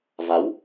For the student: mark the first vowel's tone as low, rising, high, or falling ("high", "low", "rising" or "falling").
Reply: rising